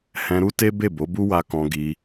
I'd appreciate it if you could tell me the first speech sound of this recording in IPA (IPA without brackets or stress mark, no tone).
h